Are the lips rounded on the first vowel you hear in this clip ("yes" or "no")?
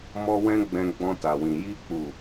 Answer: yes